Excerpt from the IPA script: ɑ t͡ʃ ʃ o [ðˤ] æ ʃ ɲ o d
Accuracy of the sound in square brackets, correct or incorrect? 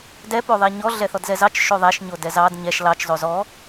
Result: correct